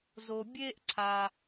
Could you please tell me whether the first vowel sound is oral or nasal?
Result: oral